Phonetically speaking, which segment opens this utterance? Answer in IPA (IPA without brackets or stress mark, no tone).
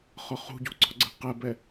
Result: χ